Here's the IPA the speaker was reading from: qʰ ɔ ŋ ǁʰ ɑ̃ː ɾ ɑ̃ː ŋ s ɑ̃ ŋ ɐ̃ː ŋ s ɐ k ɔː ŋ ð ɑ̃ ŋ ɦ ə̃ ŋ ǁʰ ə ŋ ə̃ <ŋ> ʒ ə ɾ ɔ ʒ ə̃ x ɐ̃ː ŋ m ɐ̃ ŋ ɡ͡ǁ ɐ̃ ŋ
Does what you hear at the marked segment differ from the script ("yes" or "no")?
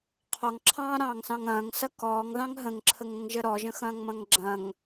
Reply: no